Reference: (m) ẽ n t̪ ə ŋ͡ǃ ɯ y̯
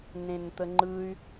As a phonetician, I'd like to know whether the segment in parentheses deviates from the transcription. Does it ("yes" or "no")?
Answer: yes